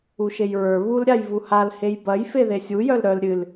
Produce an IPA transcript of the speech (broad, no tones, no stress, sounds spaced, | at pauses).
u ʃ e j ɹ ə˞ β u l ɾʲ a j v u h a l h e j b ɐ j f e ð e sʲ u j œ l ɾ œ l ɾʲ ɨ l